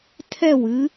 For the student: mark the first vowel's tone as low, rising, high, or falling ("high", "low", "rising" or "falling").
falling